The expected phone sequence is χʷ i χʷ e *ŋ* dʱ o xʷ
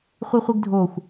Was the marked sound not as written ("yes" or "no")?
yes